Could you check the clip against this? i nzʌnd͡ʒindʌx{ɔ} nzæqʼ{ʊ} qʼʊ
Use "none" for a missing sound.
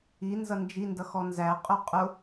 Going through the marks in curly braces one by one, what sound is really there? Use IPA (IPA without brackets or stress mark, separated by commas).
ɔ, ʊ